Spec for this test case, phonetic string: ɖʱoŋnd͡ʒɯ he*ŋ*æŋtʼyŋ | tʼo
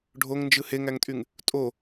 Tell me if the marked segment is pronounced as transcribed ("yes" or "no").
yes